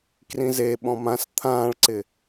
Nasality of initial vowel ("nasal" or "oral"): nasal